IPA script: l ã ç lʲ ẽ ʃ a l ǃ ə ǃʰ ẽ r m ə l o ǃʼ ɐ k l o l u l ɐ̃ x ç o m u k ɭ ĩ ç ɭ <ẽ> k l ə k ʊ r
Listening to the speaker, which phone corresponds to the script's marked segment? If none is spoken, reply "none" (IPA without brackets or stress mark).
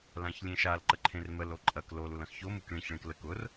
ẽ